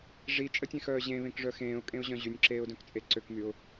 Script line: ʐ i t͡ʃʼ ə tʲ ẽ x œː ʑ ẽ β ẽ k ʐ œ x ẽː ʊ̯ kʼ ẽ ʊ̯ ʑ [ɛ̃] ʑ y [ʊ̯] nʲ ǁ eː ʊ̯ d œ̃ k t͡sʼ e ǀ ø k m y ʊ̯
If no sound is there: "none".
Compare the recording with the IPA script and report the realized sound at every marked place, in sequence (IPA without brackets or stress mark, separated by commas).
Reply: œ̃, none